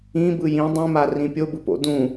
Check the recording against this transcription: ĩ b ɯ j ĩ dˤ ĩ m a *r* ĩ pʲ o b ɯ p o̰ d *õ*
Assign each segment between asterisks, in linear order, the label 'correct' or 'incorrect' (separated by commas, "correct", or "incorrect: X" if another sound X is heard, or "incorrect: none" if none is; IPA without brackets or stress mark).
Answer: correct, incorrect: ũ